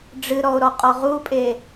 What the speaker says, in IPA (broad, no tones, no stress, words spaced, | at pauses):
ɖ͡ʐɨɾɔo̯ɾɔqʼɔ ʁupʼe